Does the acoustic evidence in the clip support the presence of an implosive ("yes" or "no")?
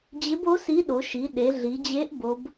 yes